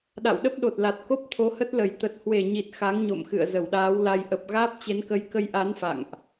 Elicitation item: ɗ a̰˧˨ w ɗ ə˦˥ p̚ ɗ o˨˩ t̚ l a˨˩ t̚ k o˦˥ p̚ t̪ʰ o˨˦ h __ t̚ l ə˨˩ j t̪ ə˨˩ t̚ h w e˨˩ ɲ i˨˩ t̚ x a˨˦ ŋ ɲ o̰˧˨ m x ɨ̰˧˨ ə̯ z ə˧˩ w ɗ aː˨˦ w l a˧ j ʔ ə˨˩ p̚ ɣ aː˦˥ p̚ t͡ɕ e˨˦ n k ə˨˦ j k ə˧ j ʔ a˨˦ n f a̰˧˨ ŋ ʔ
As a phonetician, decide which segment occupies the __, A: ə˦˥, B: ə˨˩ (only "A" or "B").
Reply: A